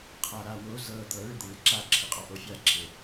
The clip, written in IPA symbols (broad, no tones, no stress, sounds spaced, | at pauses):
qʰ a ɾ a w o z ɤ d̪ ɤ ɭ ɪ d̪ ɪ ɭ ɪ ǁ a ǁʰ ɪ qʼ ɔ ʔ o fʲ a ǁʰ e